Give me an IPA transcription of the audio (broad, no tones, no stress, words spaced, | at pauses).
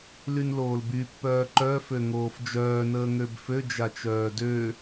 lynloːlby pːœːǃœ føŋoːfd͡ʒœː nəːŋøbfø d͡ʒat͡ʃœːdø